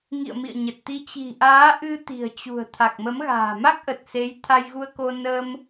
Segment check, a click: absent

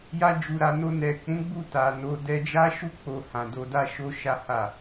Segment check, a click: absent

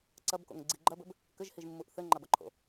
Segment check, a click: present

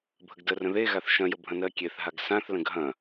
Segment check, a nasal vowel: present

